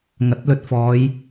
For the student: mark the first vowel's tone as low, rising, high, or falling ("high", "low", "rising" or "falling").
rising